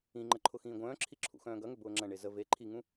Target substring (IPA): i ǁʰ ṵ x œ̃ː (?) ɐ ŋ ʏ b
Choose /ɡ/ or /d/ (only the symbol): ɡ